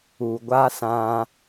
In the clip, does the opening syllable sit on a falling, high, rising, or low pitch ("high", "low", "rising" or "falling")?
low